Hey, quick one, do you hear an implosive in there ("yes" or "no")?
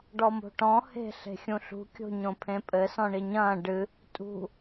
no